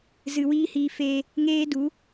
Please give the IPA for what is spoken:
z ɨ˨ w iː˦ h iː˧ f eː˧ | ŋ eː˦ d u˨˦

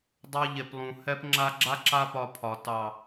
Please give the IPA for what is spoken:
dˤ ɑ˧ ʎ e˨ p lˠ ũ˨ h ɛ˧ p ŋ͡ǁ a˧ ɡ͡ǁ a˦ ǁ a˦ p ɒ˧ pʰ ɒ˨ t ɑ˨

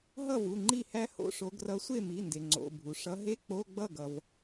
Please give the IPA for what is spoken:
ɦ ʌ˥˩ v u˩˧˩ ŋ͡ǃ i˥˩ h æ˦˥ h o̰˦˥ ʂ o˨˦ ɡ r ʌ˨˦ sʷ e˥˩ m i˩˧˩ n d e˩ ŋ͡ǀ o̰˩˧˩ bʱ u˩ ʂ ʌ˨˦ ɦ e˧˥˧ k͡p o˧˥˧ ɡ͡b ʌ˥˩ ɡ ʌ˩ v

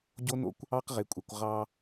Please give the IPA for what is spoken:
ɟ o˦ n o̰˦ kʷ | ɑ˦ q ʁ e˨ kʷʼ e˨ kʷ ʁ ɑ˧

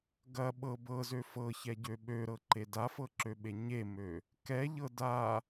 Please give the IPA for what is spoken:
ɡ ɐ ɓ ɤ b ɤ z ø f ɤ ç ɛ ɟ ø ɓ ø ɾ ɤ ǃ e d a f ɤ ǁ ø ɓ e ɲ e m ø | k ɛ ʎ ɤ d a

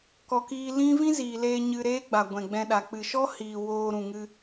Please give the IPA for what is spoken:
k ɔ˨ k iː˧ l ĩ˦ v ĩ˦ z iː˨ l eː˧ ɲ ɨ˧ ɾ eː˦ ɡ͡b a˨ ɡʷ ɛ̃˨ ɡ͡b ɛ̃˧ ɗ a˨ k͡p ɨ˨ ʃ ɔ˦ h iː˨ w oː˧ ɾ ũ˨ ŋ ɨ˧

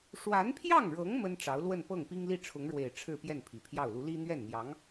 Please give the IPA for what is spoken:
ʂ w a˧˥ n pʰ j ɑ˥˩ ŋ ɻ ɤ˧˥ ŋ m ə˥ n ʈ͡ʂ ɑ˧˥ ʊ̯ l w ə˥˧ n p ɤ˥˩ ŋ p i˥ ŋ l i˥˩ ʈ͡ʂʰ ʊ˧˥ ŋ ɻ w e˨˩ ɪ̯ ʈ͡ʂʰ ɻ̩˥˧ p j ɛ˥˩ n pʰ i˨˩ pʰ j ɑ˥˩ ʊ̯ l u˧˥ l i˥ n̪ ɥ ɛ˥˩ n n̪ j ɑ˧˥ ŋ

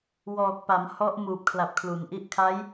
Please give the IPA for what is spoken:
w ɔː˨˩ k̚ p a˩˦ m h ɔ˦˥ ʔ m uː˨˩ p̚ kʰ l a˨˩ p̚ kʰ l u˩˦ n ʔ i˦˥ ʔ kʰ a˦˥ j

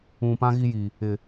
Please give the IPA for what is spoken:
ũ˨ p ã˦ ɣ i˦ j i˨ | ɪ˨

